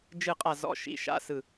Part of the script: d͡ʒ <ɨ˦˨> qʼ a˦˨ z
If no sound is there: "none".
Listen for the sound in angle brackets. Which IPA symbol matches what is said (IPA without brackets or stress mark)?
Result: ɨ˦˨